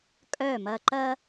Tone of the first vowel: falling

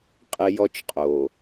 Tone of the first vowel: high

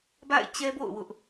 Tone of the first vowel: falling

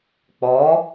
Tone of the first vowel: rising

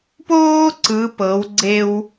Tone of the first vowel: high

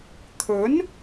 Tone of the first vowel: rising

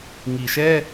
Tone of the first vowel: low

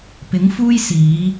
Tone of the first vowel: rising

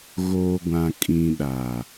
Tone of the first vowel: low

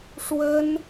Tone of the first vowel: high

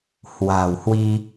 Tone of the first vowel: low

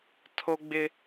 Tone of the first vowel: high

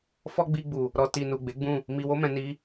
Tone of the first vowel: high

